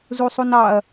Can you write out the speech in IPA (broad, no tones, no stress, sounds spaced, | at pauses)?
z u sˤ u n ɑ ɐ̯